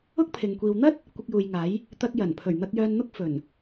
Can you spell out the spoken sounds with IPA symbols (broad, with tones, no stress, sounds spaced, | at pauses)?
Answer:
ʊ˥ k̚ pʰ ɪ˨ ŋ kʷ iː˨ w n̪ ɐ˥ t̚ | kʷ ɪ˧ k̚ j uː˨ j ŋ aː˨˥ j | t̪ ɐ˧ k̚ j ɐ˨˩ n pʰ ɵ˨˩ ɥ n̪ ɐ˧ k̚ j œː˧ n n̪ ʊ˥ k̚ f ɵ˨˩ n